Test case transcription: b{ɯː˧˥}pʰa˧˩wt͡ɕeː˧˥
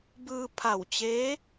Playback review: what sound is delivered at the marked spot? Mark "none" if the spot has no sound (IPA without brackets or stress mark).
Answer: ɯː˧